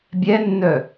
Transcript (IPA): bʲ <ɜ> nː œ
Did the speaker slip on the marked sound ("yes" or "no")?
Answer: yes